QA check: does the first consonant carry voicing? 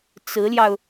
no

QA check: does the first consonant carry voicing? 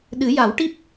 yes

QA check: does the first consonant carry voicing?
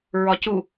yes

